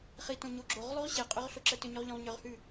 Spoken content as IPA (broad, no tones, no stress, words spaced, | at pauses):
χitõ ɲoɡ͡ǁoʁlˠʉʁ ɕeqʼʏʁ ɬoǁətʏɲʏʁ ʎõʁɲʏʁhʉ